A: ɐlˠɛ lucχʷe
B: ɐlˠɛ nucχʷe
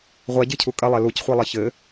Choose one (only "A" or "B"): A